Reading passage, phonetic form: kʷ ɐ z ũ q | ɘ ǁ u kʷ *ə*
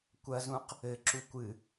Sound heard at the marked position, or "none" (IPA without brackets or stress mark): ɨ